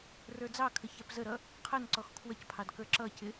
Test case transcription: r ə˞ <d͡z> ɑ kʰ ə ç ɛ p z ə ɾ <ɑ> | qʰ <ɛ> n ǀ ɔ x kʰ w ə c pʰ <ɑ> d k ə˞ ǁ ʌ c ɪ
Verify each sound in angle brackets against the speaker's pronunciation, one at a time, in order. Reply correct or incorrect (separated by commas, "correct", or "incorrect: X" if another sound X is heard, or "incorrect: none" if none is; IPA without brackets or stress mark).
correct, incorrect: ʌ, incorrect: ə, correct